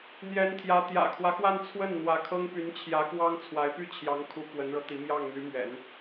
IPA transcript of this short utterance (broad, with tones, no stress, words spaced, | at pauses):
n̪jɛ˧˥nt̪ʰjä˧˥ t̪jä̰˨˩kʰwä˦xwa˥˧n t͡sʰwə˥˩n n̪wä˧˥kʰɤ˥ŋ py˧˥nt͡ɕʰjä˧˥kwɑ˥ŋ t͡sʰwa˧˥ɪ̯py˥˩t͡ɕʰjɑ˧˥ŋkʰu˧˥ kwə˧˥nɻɤ˧t̪i˧˥ mjɑ˥˩ŋn̪y˧˥mɥɛ̰˨˩˦n